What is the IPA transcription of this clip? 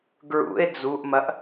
ɡ ɹ ṵ e̯ d͡z u ʔ m ɐ ʔ

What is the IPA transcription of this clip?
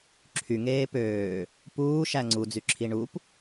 ǁʰ y ŋ eː p øː | p uː ʃ æ ŋ͡ǀ u d͡z y ǁʰ i ɳ u p

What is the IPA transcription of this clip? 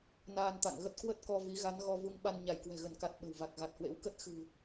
n aː˧ n t̪ a̰˧˨ ŋ ɣ ə˦˥ t̚ k w ə˦˥ t̚ k ɔ˧ v i˨˦ ɣ a˨˦ n ɣ ɔ˧ v u˧ ŋ ɓ a˧ n ɲ a˧˩ j k w ɛ̤˨˩ ɣ ə˧˩ n k a˨˩ t̚ ɓ ə̤˨˩ w v a˨˩ k̚ ɣ a˨˩ t̚ h w ḛ˧˥ w k ə˦˥ t̚ x ɨ̤˨˩

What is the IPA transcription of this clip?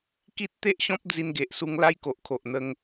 k i˦ t̚ t̪ e˦ ʔ ɕ ɔ̃˦ p̚ d͡z i˧ n ɡ e˨ ʔ s u˧ ŋ l a˦ j k o˨ ʔ kʰ o˨ ʔ n̪ ə˧ ŋ

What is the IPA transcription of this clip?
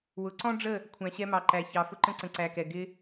w ʊ˨ ǀ ɔ̃˦ ɖ͡ʐ ə˦˨ | kʷʰ æ̃˨ ɕ ɛ˧ m ɑ˨ ǃ æ˨ ç ɑ˨ f ʊ˧ ǃ ə̃˧ ǀ ə̃˨ ǀ æ˨ k ɛ˨ ɡ ɪ˧

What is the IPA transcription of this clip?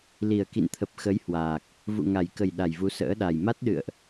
l i˨˩ ə̯ k ḭ˧˨ n t̪ʰ ə˨˩ p̚ x ə˨˦ j h w aː˨˩ k̚ | v ṵ˧˨ ŋ a˨˩ j k ə˨˩ j ɗ a˨˩ j v u˨˦ s ə̰ː˧˥ ɗ a˨˩ j m a˦˥ t̚ ɗ ɨ̰˧˨ ə̯ ʔ

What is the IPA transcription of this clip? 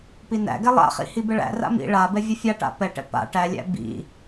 p i n æ̰ ɡ ɛ lˠ a̰ χ ḭ h i b ɛ ɭ æ̰ r a̰ m ḭ ɭ a b ɛ vʲ ɯ fʲ a ʈ a̰ p ɛ ʈ ɛ̰ p a̰ ʈ æ lʲ æ̰ b ḭ

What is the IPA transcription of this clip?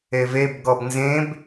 e v e b ɡ ɔ b n z ẽ b

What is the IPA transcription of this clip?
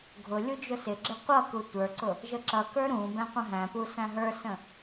ɡʱ ʊ lʲ u d͡ʒ ʊ s ɪ ɡ͡ǁ ɪ qʷ ʌ k u tʷ ə˞ ǀ ʊ | ʒ ə ǁ ʌ k ə˞ ɾ ũ b ɛ̃ qʷ ə̃ ɦ æ̃ p u s æ̃ ɦ ə˞ s ə̃

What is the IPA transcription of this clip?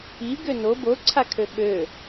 i ɡ ø n o b o ǀʰ a kʰ ø ɓ ø

